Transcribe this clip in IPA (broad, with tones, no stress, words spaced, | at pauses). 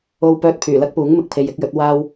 o˥w pœː˥t̚pʰyː˨˩ lɐ˥k̚puː˨˥ŋ mɪ˨k̚pʰe˧jɪ˨˥k̚jɵ˨˥t̚ waː˥w